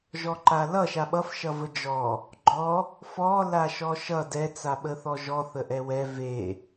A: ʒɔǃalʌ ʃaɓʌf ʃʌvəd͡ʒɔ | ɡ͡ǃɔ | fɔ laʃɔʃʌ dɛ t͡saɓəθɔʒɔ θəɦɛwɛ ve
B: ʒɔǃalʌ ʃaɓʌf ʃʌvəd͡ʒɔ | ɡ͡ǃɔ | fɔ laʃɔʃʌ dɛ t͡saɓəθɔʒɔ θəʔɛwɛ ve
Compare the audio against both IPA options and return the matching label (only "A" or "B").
B